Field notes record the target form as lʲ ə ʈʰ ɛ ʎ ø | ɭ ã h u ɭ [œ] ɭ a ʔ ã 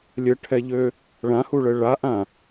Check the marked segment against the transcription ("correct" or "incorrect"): incorrect